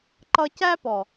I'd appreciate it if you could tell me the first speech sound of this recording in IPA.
ǃ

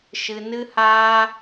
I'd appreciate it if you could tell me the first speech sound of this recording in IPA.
ʃ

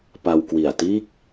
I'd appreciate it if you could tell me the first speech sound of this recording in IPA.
p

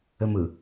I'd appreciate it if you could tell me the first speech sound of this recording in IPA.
ɘ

